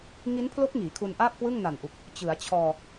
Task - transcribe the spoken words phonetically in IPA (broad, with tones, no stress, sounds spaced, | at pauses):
ŋ i˦˥ n pʰ l o˦˥ k̚ ŋ iː˩˦ kʰ u˧ n ʔ aː˥˩ p̚ k w ɯ˥˩ ŋ n a˨˩ n ʔ u˨˩ k̚ | t͡ɕ ɯ˩˦ a̯ t͡ɕʰ ɔː˧